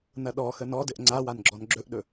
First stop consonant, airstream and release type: implosive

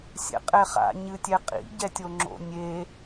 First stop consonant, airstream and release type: ejective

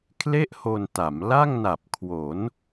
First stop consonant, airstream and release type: aspirated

